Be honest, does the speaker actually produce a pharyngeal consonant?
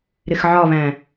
yes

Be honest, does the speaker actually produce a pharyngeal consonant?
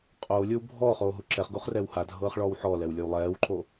yes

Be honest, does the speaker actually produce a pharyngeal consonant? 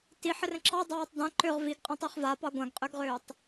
yes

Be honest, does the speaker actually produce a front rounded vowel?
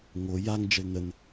no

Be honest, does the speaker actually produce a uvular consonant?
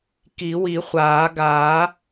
yes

